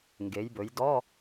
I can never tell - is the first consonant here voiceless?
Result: no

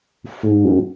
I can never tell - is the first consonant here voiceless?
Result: yes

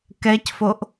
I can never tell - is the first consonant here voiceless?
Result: yes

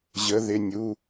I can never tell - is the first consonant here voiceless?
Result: no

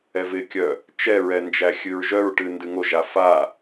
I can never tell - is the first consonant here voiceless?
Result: no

